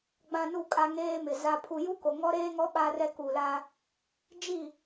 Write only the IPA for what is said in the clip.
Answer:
ɡ͡b ã˨ n u˨ kʼ a˦ ŋ eː˦ m ɪ˨ z a˨ pʰ u˨ j u˦ k o˨ ŋ ɔ˦ ɾ eː˦ ŋ ɔ˦ ɓ a˦ r ɛ˦ k u˨ l a˦ | d͡ʒ i˦˨

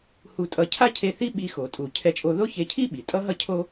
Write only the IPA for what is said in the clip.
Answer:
h u˧ tʼ ʌ˧ cʰ a˥ cʰ e˧ θ i˥ ɓ i˧ x o˩ tʼ u˩ cʰ ɛ˧ t͡ʃʼ o˧ ð o˥ ç e˧ cʰ i˥ ɓ i˩ tʼ ʌ˥ ɦ ʌ˥ cʰ o˥

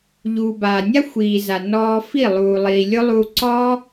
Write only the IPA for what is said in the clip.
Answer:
ʎ uː˨ b aː˨ nʲ a˦ xʷ iː˨ z a˨ n ɔː˧ f i˦˨ lˠ uː˨ lˠ iː˨ lʲ ʊ˦ lˠ uː˧ ǀ ɔ˦

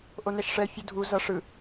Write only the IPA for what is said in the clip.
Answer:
ʔ o n ɛ ʃ ʂ ɛ fʲ u dʱ u z ʌ ʂ ɯ

